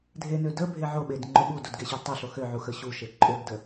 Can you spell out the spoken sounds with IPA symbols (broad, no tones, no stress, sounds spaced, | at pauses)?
dʱ e n ø d ə bʱ e ʕ o ɓ e d ŋ͡ǃ o ɓ u d u d ɡ e ɕ ø d tˤ ə ɬ o x ø ʕ u x ə ɕ u ʃ e ǃʼ ø ɡ d ə